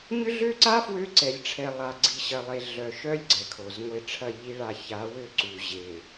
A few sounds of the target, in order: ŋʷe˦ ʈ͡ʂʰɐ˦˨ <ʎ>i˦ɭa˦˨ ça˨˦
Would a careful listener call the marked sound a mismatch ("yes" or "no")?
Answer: no